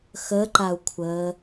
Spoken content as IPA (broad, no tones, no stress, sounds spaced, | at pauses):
x ə ǃ a u̯ kʷʰ əː